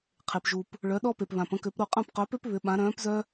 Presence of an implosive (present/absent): present